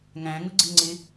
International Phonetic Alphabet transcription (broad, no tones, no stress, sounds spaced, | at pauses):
ŋ æ̃ ŋ ʊ ɡ͡ǀ ɪ ŋ͡ǀ ɪ